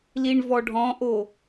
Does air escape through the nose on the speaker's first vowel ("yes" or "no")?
no